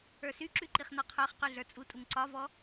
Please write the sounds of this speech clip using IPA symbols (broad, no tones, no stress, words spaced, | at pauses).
ə˞syǁy ǃiχnɒqʰə˞χqy ɮə˞t͡sʼutʼuŋ ǀɒvɔ